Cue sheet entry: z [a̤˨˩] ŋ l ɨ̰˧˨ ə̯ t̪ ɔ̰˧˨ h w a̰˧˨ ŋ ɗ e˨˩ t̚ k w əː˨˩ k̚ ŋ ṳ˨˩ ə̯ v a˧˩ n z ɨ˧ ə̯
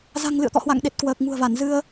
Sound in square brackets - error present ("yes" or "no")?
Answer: no